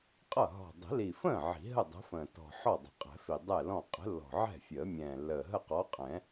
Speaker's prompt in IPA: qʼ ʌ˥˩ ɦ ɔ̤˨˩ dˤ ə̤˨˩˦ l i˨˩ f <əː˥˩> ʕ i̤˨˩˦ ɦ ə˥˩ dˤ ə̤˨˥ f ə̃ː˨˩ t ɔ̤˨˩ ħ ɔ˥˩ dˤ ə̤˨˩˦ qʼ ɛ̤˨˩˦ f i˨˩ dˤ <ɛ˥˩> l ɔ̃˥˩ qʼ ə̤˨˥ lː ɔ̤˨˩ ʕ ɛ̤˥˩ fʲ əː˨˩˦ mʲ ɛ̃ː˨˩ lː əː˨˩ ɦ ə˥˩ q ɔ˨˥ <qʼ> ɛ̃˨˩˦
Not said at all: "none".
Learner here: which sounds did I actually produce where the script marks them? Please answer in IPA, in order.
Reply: ə̃ː˥˩, ɛ˥˩, qʼ

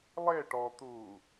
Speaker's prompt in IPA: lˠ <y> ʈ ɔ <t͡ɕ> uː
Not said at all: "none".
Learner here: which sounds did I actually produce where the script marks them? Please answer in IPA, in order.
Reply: e, t̪

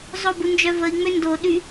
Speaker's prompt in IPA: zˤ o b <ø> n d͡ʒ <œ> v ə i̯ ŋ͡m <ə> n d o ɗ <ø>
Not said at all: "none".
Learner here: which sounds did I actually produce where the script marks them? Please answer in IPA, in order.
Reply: u, œ, ø, y

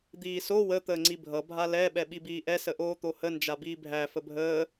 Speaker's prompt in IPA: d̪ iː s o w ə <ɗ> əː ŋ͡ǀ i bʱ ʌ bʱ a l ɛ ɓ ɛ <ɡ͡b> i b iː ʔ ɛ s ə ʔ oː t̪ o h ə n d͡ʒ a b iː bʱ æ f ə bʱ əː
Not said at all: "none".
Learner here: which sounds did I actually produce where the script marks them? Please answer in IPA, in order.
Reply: t̪, ɓ

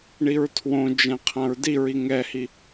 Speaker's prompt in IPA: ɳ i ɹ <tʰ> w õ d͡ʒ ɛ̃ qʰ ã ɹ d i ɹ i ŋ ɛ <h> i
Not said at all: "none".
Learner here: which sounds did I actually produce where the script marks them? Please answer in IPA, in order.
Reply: tʰ, h

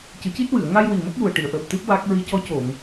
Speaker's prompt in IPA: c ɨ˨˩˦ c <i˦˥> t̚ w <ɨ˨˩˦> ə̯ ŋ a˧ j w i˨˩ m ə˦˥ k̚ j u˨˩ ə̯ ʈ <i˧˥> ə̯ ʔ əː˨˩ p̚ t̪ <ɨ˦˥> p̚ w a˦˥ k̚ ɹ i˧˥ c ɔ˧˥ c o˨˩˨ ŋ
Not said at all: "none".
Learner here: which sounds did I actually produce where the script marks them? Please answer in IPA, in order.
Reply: i˦˥, ɨ˨˩˨, i˨˩˨, ɨ˦˥

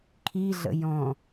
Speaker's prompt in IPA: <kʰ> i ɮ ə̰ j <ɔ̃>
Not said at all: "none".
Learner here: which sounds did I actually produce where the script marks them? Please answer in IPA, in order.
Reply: kʰ, ɔ̃

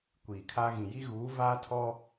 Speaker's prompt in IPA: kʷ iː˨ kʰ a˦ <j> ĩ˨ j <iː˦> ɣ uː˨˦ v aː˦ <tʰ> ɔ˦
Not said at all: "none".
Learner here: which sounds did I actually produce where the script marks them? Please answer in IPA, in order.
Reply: ɣ, i˦, tʰ

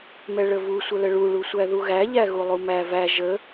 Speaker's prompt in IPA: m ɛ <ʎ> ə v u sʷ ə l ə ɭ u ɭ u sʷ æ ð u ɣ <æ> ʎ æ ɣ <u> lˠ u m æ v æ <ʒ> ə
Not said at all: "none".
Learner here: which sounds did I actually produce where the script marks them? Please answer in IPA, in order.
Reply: ɭ, æ, u, ʒ

